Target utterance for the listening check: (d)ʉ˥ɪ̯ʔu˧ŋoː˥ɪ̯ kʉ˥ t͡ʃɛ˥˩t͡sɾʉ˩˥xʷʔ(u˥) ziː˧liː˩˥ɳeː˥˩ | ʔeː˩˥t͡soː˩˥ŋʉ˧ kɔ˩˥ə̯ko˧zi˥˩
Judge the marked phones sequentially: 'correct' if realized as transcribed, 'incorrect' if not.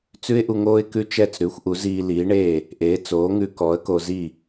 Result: incorrect, incorrect

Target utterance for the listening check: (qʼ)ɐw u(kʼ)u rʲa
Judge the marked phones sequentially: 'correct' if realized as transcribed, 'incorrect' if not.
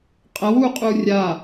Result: correct, incorrect

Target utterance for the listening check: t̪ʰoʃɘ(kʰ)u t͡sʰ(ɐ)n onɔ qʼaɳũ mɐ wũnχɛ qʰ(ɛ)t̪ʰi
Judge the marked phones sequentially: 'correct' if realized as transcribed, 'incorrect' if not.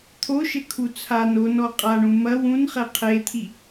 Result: correct, incorrect, incorrect

